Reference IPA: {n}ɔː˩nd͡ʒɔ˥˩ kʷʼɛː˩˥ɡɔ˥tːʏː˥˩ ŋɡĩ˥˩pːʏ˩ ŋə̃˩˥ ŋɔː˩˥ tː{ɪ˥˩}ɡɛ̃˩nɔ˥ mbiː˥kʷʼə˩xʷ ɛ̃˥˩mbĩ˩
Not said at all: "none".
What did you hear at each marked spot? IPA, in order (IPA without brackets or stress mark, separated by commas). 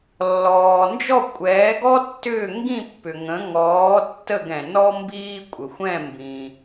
lː, ə˥˩